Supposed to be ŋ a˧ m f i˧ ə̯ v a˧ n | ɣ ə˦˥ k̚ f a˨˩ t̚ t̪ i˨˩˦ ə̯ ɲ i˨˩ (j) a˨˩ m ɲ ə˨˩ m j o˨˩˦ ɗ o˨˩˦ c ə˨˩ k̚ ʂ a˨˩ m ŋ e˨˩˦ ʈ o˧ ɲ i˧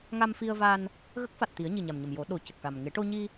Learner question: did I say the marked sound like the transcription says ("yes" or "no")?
no